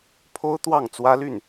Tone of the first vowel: high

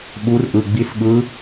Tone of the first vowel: rising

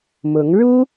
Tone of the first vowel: rising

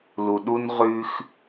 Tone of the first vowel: low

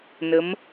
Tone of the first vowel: rising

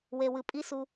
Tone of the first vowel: low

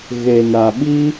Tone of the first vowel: low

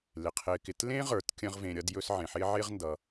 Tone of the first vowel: low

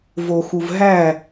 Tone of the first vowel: low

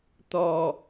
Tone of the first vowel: low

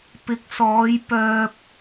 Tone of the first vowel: rising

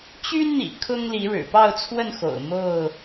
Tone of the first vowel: high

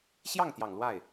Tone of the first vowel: falling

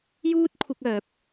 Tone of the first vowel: high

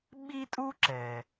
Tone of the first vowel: high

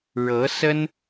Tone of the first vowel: rising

